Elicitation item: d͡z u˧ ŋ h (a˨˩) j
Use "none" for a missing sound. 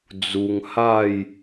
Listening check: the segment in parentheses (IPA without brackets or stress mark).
a˥˧